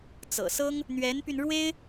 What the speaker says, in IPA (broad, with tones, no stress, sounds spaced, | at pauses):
t͡s ɤ̰˨˩ s ɤ˥ ŋ | n̪ ɥ ɛ˧˥ n p y˧ n ɻ w e˥ ɪ̯